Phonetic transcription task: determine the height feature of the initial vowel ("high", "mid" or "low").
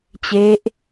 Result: mid